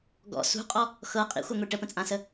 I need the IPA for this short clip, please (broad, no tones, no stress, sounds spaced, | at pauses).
ɡ ɔ̰ s ṳ qʼ ɔ | x ɤ qʼ ḭ xʷ œ ŋʷ i ʈ ə p ə̃ t͡sʼ ã s ə